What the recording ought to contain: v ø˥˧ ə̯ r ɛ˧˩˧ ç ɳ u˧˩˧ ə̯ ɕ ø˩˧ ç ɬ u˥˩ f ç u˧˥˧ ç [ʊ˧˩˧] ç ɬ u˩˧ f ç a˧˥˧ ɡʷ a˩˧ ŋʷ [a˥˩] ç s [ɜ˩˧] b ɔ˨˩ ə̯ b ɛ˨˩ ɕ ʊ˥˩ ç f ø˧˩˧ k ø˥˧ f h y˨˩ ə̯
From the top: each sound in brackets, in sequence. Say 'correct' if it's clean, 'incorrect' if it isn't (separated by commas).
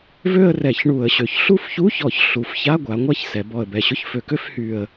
incorrect, correct, incorrect